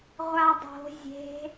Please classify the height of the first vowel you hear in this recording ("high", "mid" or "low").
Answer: low